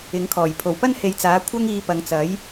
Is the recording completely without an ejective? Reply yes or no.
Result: yes